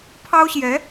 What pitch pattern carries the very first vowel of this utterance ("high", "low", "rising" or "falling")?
high